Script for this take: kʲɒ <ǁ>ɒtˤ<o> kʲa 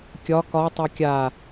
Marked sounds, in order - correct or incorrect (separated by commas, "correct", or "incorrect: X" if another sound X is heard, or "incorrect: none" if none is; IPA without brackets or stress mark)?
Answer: incorrect: k, correct